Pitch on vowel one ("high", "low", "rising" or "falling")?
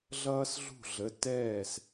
high